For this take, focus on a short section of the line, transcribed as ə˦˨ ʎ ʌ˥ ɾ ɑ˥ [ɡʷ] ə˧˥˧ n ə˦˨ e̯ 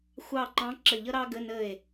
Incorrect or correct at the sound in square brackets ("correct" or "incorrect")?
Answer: incorrect